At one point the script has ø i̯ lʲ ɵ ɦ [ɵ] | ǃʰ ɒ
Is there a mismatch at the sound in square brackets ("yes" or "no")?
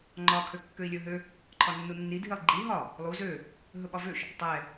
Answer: yes